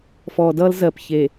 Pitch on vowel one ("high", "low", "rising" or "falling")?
low